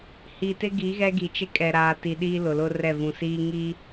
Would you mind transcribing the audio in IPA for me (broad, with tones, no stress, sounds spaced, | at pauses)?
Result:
h iː˨ t ɪ˦ ɡ i˨˦ ɣ ɛ˦ ɡ i˨ t͡ʃ ɪ˦ kʼ ɛ˨ ɾ aː˨ t i˨ ɗ iː˦ l ʊ˨ l ʊ˦ r ɛ˦˨ v ũ˨ s iː˦ ŋ iː˦